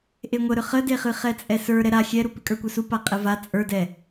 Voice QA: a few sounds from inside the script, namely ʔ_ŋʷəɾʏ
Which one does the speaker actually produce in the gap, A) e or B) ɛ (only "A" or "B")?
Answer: A